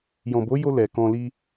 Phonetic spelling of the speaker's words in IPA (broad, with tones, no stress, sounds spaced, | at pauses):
j ɔ̃˨ b o˨˦ j o˧ l ɛ˨ k ɔ̃˧ l i˧